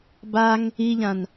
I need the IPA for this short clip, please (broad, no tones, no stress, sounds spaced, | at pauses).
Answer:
b a ŋ | i ʎ ã n